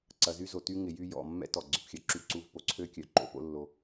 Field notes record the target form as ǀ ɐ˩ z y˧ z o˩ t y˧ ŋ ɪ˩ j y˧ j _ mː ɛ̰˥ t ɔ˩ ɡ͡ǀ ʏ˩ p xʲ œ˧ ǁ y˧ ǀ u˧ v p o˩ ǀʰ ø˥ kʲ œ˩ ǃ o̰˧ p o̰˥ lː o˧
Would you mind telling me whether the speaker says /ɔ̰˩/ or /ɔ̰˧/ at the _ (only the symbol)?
ɔ̰˩